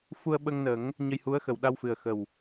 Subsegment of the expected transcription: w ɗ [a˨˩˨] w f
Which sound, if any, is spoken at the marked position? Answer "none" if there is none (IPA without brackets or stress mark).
a˧